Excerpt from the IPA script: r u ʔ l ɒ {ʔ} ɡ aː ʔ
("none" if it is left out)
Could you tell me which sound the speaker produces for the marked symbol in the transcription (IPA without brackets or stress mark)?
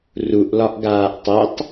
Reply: ʔ